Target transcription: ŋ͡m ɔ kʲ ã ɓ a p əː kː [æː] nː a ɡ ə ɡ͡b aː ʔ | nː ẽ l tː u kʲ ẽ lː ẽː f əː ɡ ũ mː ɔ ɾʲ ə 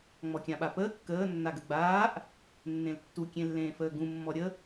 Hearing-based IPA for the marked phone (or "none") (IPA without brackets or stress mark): əː